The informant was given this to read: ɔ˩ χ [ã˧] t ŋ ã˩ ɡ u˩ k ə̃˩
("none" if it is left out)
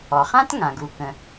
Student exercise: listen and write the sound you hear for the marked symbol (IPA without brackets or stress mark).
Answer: ã˥